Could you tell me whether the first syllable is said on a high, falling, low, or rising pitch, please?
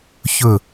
falling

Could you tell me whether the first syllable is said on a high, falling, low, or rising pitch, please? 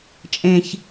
low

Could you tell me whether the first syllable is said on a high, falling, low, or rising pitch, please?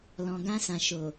low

